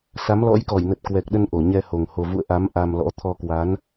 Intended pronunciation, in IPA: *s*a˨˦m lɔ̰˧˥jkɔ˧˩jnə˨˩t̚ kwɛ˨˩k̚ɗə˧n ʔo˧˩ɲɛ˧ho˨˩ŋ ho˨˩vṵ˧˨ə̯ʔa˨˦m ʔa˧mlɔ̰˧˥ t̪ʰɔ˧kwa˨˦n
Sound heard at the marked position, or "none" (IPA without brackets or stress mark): s